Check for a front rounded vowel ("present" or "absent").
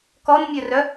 present